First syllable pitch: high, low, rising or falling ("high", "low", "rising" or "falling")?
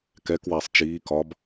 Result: rising